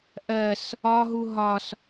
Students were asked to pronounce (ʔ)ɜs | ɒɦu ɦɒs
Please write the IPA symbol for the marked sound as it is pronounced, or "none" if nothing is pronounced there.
ʔ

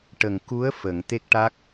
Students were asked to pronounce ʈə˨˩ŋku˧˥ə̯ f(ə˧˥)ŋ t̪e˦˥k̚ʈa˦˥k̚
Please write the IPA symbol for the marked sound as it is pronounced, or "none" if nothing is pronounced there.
ə˨˩˨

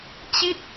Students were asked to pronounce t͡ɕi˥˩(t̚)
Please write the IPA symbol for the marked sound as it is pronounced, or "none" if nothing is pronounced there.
t̚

